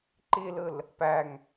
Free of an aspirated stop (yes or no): yes